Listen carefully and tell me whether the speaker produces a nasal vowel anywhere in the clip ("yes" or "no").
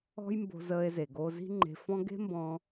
yes